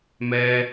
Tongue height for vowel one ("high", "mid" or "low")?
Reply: mid